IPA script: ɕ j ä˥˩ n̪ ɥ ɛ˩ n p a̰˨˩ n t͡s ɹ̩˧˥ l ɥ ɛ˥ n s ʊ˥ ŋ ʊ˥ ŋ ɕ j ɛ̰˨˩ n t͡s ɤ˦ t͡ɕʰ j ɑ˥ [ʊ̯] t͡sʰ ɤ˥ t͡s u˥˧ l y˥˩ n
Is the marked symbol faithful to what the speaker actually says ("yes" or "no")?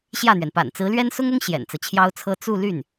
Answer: yes